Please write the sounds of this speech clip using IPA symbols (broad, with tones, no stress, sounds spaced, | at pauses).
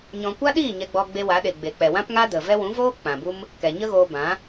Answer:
ɲ ɔ̃˧ kʷ a˦ ɗ iː˦˨ ɲ ɛ˧ ɡ͡b ɔ˧ ɡ͡b e˧ w a˨˦ ɗ e˨ ɡ͡b e˨ k͡p ɛ˨ w ã˦ p ŋ a˦ d ə˨ v ɛ˦ w ũ˨˦ v oː˦ k͡p ã˨ b u˦ m | k ɛ˨ ɲ ə˦ ɣ oː˧ b ã˨˦